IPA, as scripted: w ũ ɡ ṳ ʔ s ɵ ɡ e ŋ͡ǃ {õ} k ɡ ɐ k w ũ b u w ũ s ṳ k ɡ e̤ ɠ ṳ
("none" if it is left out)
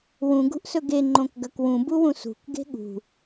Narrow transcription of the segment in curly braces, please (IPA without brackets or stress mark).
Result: õ